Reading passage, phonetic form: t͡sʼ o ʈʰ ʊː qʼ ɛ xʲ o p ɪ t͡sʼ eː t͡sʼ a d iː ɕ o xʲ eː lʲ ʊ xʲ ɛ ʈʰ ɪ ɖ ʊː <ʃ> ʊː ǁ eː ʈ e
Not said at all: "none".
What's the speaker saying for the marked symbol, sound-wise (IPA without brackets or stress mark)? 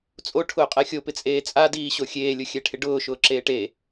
ʃ